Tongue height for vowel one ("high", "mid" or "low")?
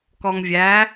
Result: mid